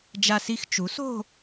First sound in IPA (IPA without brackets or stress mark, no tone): d͡ʒ